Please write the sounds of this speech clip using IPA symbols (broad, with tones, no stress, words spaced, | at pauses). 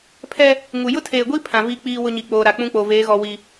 pʰɛ˦ | ŋu˨ jʊ˦tʰeː˨ɡʷi˦ pʰã˨vi˦k͡piː˦ wʊ˦ɲi˨k͡poː˨ɾa˨ k͡pũ˦k͡po˨veː˨˦ɣɔ˨ wi˨